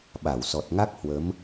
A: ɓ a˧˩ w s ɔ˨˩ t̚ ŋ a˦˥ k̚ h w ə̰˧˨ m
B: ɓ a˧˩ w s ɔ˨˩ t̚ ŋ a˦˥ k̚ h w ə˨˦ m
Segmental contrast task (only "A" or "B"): B